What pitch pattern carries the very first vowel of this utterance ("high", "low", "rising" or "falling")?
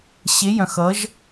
rising